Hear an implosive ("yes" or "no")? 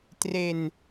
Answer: no